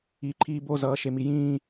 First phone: iː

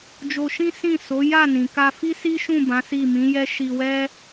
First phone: d͡ʒ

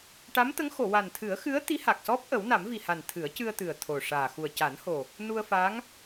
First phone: ʈ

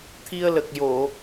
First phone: t̪ʰ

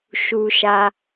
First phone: ʃ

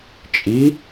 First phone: t͡ʃʼ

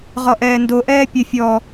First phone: ʁ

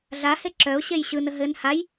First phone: ɮ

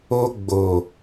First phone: o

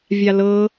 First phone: vʲ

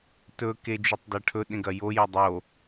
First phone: t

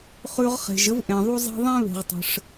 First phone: χ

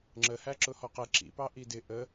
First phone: ŋ͡ǁ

